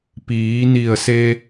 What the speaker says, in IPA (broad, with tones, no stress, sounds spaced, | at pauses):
p iː˩˧ n i˧˩ ə̯ s e˧